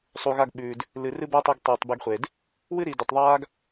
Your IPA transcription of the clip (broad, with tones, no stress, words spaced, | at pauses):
sˤu˩ɣa˧ɡ ɓʉː˩d | lɨ˩ rɨ˥ba˥tˤi˧ɡ tˤɨː˩tˤbe˧ɡχʷe˩d | wɨ˥ɾi˩ du˩tˤðˤaː˥ɡ